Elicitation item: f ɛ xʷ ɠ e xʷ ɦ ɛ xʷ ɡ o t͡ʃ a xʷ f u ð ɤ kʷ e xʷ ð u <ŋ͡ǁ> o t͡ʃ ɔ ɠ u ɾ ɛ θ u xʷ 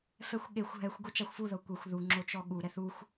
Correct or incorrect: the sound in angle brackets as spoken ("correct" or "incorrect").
correct